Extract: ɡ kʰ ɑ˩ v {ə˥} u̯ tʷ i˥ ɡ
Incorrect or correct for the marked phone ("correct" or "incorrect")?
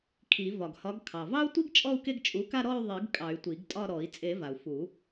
incorrect